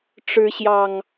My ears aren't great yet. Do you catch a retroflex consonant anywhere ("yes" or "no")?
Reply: yes